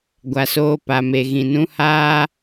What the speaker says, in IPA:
ɡʷa˨soː˦ pa˨me˨ ɣĩ˨nũ˦haː˦

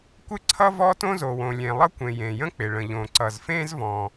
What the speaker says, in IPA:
kʷɪ˥ǀʰʌ˥ vɔ˥tõ˥zo˩wõ˩ lʲẽ˩ lˠʌ˥kʷẽ˩ jẽ˩jə̃˥k͡pɪ˩ɭə̃˩ ʎõ˩ ǀʌ˩zfẽ˥zvɔ̃˩

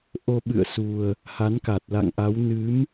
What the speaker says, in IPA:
ʔo˧ɓɨ̰˧˨ə̯su˨˩ə̯ | ha˨˦nka˨˩t̚ la̰˧˨ŋʔa˨˦w nɨ˨˦m

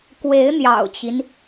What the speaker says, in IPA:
kwe˧˥ɪ̯n̪jɑ̰˨˩ʊ̯t͡ɕi˦n

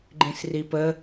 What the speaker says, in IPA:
ɡ͡ǃĩsripə

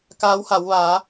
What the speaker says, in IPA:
kaː˧˥wha˩˧w ʋa˩˧

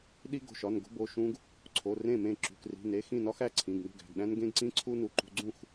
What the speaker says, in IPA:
ɗi˦ɡo̤˩˧˩ʃɒ˩˧˩nɡo̤˦ bo˩˧˩ ʃũ˦ɡ | ǀʰo˩˧˩rẽ˥˩mẽ˥˩ ǁṳ˩˧˩kri̤˩˧˩ ne˩˧˩xĩ˥˩nɒ˦x æ˥˩ǀʰĩ˩˧˩ɡ nṳ˥˩ɡæ̤˩˧˩ɡɗæ̃˦nɡẽ˦ɡ ǀĩ˦ǀʰu˦nu˩˧˩ ǃṳ˦ ɡ͡ǀũ˥˩x

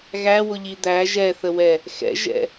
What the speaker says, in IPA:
ɣæwʊʎi d̪æ ʒɛθəwɛ | xɛ̰ʒɛ̰

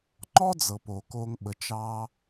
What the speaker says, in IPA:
ŋ͡ǃɔ˥d͡zɤ˩ po˩ko˨ŋ ɓə˩t͡ʃɑ˨

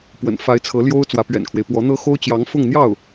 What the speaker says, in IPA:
pwə̰˨˩n fa˧˥ɪ̯ t͡sʰɤ˧˥ljo˥ʊ̯ t͡swä˧˥pɥɛ̰˨˩nkʰwe˦ɪ̯ pwɔ˧˥n̪ɤ˥ xo˥ʊ̯t͡ɕjɑ˧˥ŋ fʊ˥˧ŋn̪jɑ˥˩ʊ̯

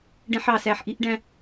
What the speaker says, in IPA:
ɖɛ̃˧ħɑ˨ sæ˨ħʔi˧ʔɖæ̃˧

